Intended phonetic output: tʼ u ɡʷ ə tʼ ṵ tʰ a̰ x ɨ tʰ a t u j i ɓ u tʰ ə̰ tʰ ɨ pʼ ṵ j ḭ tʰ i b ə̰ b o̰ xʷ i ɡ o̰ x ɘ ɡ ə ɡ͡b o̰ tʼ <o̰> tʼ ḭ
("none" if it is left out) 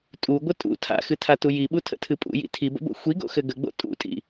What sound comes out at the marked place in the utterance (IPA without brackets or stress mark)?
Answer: ṵ